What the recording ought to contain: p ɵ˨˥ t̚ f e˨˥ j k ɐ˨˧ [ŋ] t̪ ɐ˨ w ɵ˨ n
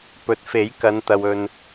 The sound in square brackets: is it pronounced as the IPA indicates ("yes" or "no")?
no